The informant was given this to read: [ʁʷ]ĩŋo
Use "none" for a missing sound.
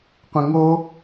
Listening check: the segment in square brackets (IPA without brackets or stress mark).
qʷ